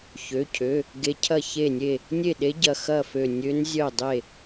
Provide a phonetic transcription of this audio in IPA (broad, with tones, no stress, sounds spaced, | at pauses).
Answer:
ç ø˩˧˩ cʰ ø˩˧˩ | ɡ e˧˥ cʰ ɐ˥˩ ç e˥˩ nʲ e˥˩ | nʲ e˥˩ ɗ e˧˥ ɟ ɐ˩˧˩ x ɐ˥˩ f ø˧˩ nʲ ø˧˥ n zʲ œ˥˩ dˤ e˥˩